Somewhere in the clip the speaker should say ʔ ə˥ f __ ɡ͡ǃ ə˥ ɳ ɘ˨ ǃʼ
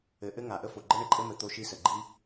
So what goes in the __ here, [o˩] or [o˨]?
o˩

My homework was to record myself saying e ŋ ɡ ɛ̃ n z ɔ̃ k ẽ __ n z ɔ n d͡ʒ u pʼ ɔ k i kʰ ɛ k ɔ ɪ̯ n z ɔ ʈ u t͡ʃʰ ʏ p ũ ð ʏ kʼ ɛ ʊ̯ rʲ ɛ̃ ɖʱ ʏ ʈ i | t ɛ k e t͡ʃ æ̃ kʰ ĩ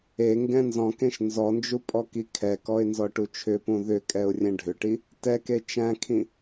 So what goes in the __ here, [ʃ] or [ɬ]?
ʃ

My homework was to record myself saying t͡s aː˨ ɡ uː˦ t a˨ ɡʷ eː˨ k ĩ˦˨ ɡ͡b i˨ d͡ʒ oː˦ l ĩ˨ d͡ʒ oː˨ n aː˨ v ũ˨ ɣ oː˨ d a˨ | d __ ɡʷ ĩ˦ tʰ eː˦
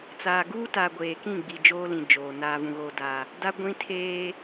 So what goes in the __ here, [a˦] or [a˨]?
a˦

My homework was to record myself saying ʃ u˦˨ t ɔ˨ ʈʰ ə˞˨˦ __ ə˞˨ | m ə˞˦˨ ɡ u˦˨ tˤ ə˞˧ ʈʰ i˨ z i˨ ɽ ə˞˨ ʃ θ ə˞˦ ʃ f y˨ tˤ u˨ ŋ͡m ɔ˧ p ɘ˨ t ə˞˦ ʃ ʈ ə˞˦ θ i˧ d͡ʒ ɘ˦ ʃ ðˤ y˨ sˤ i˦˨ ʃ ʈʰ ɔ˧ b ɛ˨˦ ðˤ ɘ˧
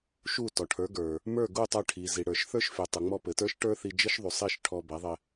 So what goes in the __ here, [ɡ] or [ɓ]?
ɡ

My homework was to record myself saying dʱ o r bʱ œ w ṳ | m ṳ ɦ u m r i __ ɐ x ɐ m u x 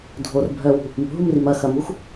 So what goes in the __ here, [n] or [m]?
m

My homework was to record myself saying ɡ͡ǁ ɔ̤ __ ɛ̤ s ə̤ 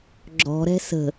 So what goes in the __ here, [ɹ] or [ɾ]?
ɾ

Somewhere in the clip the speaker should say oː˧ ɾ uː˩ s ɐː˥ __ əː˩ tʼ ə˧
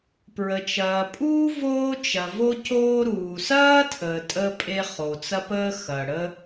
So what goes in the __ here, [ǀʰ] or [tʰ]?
tʰ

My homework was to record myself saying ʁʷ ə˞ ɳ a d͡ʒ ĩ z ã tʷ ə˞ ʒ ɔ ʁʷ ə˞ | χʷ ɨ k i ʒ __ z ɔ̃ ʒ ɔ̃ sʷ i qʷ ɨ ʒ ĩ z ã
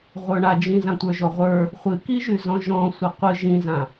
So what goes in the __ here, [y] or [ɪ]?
y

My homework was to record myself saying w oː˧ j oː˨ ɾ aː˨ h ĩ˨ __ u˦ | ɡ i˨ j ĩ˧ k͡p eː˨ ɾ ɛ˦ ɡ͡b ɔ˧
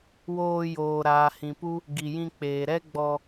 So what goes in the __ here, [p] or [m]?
p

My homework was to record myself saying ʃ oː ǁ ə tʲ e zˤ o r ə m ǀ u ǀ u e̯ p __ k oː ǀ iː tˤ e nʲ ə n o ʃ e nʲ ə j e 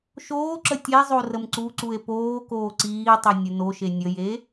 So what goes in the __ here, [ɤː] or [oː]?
oː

